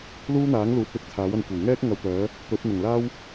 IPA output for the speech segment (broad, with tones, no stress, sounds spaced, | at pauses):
l uː˥ n̪ aː˨˥ ŋ l uː˨˥ t̚ l ɪ˧ k̚ t͡sʰ aː˨˥ w ɐ˧ n kʷ ɐ˨˩ w ŋ ɛː˥ k̚ ŋ ɐ˧ w t̪ œː˨˥ | t̪ ɵ˨˥ t̚ n̪ ʊ˨˩ ŋ l aː˥ w